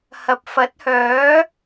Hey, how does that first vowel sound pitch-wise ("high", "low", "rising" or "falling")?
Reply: low